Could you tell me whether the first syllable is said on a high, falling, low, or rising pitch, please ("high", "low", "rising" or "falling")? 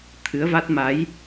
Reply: rising